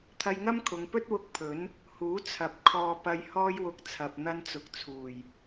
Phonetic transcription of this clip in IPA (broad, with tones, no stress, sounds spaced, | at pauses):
t̪ʰ ɐ˧ j ŋ ɐ˥ m kʰ ʊ˨˧ ŋ p ɵ˥ t̚ w ʊ˧ k̚ pʰ ɵ˨˥ n | h uː˨˥ t͡sʰ ɐ˨˥ p̚ kʰ ɔː˨ p ɐ˧ j h ɔː˥ j w ʊ˧ k̚ t͡sʰ ɐ˨ p̚ n̪ ɐ˧ n t͡s ʊ˨ k̚ t͡sʰ uː˨˩ j